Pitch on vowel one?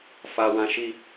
high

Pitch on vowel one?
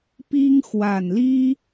high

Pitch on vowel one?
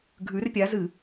rising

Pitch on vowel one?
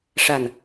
low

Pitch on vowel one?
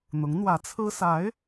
rising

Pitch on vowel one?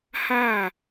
falling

